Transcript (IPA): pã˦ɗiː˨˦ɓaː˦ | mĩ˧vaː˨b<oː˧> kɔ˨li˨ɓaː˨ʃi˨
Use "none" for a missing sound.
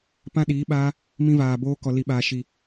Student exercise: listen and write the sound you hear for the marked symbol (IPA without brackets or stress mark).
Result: oː˧